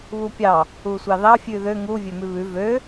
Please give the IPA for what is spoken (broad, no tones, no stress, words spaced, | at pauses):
βupʲɑ | usʷɑðɑ fʲʉðø ŋu vʲømʉβʉ vø